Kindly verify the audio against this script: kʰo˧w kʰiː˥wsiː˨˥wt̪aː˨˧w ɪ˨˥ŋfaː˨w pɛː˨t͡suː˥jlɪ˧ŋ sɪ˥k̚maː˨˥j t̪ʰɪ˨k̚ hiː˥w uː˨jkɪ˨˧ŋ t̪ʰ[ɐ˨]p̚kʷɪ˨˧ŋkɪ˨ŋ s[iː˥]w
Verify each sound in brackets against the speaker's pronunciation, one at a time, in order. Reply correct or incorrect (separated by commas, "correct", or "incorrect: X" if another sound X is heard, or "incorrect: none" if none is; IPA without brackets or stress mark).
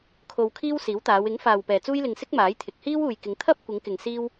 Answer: incorrect: ɐ˥, correct